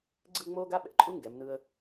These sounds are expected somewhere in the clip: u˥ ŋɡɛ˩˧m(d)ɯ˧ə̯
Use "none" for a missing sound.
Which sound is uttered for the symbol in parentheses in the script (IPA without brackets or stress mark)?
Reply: n